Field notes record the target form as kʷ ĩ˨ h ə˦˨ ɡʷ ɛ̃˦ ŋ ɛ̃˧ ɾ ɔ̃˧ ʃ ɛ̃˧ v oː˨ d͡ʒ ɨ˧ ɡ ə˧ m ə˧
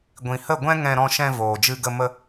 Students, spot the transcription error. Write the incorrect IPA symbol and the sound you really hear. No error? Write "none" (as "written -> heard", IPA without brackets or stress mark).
kʷ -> ɡʷ